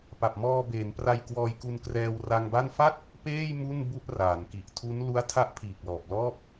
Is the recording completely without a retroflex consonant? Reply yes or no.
yes